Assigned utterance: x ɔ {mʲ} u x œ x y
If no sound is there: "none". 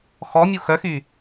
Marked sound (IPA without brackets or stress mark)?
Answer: mʲ